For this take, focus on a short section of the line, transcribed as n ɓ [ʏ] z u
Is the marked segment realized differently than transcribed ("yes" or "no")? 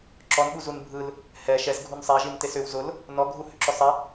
yes